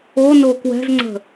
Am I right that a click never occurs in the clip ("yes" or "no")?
no